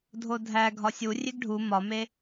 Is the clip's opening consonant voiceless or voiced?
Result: voiced